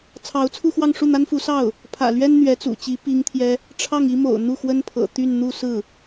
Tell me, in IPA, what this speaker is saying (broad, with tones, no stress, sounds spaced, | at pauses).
t͡sʰ ɑ˧˥ ʊ̯ t͡sʰ u˥˧ x w ɑ˥˧ ŋ ʂ u˥˩ n̪ a˥ n f u˧˥ s ɑ˥˩ ʊ̯ | pʰ ä̰˨˩ l ɥ ɛ˥ n n̪ ɥ ɛ˧˥ t͡s ṵ˨˩ t͡ɕ i˧˥ p i˥ ŋ t̪ʰ j ɛ˥ | ʈ͡ʂʰ ɑ˥˩ ŋ i˥ m o̰˨˩ ʊ̯ n̪ u˥˩ x w ə˥ n pʰ ɤ̰˨˩ t̪ y˥˧ n n̪ u˥˧ s ɹ̩˥˩